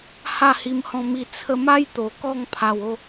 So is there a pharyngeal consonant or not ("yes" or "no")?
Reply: no